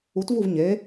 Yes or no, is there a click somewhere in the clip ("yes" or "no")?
no